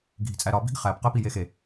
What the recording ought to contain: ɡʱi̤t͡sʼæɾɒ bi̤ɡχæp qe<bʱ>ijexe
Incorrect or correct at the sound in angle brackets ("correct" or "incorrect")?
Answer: incorrect